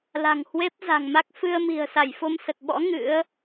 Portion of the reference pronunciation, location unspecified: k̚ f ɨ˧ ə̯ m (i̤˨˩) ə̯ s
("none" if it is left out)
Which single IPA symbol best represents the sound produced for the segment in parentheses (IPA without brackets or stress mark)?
i̤˨˩